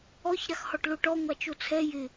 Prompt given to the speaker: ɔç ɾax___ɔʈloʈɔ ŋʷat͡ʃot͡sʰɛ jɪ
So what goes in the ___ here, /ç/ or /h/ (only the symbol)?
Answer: h